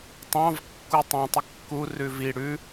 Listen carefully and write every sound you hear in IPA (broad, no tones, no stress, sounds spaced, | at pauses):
tˤ ɑ̃ v kː u tˤ ũ tˤ ə kː u r ʉ v i ɽ ʉ